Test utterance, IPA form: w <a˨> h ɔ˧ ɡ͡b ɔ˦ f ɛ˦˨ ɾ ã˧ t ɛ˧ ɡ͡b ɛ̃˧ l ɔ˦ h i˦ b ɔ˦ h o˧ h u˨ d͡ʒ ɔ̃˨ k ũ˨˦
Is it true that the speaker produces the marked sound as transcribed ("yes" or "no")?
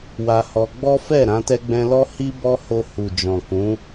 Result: no